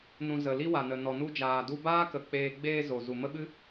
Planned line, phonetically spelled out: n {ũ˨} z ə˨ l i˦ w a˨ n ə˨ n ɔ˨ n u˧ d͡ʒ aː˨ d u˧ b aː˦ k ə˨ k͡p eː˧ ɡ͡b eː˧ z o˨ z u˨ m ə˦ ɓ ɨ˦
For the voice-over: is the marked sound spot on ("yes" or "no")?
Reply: yes